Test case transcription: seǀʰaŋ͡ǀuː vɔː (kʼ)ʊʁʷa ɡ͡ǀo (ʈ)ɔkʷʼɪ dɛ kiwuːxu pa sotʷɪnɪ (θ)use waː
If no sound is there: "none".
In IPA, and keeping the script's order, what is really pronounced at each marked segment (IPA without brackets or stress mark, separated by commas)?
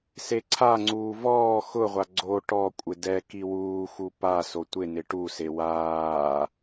x, ʈ, ʈ